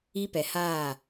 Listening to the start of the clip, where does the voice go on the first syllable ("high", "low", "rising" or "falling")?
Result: high